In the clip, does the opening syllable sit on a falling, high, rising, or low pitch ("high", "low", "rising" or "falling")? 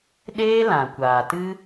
high